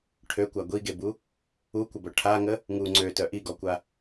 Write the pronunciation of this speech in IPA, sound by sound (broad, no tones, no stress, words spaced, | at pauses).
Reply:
ʈʰøkʷa ɡʷiɡebu | ukʷəbœ ʈʰaŋə | ŋu ŋ͡ǀøtœ ʔiɡɔkʷa